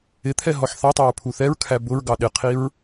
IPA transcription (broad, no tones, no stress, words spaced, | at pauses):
ɪt̪ʰɛ ɦɔħθɑtˤɑɹ pʰuθɛɹkʰæ bʊɹɡɑ ɗɪqʰiɹ